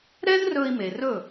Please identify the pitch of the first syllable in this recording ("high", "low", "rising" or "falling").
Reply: high